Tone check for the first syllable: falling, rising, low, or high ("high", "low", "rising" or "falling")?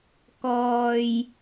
low